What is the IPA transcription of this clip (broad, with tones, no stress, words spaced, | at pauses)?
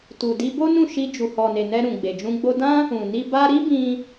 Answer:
tu˨di˧bo˦ nũ˦˨ʃi˧ d͡ʒu˨hɔ˨ne˨ nɛ˧ɾũ˨ ɡ͡be˨d͡ʒũ˧ ɡ͡bo˧dã˦ | ũ˨ ni˧ ba˧ɾi˦bĩ˧